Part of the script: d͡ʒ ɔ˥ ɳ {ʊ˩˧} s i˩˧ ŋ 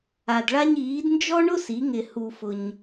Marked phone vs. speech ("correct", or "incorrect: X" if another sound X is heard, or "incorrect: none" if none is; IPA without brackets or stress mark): incorrect: ʊ˥